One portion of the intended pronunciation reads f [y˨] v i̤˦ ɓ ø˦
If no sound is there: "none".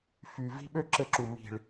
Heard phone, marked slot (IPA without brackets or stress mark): y˨